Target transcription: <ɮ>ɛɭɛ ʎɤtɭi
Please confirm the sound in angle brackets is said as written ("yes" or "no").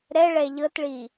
no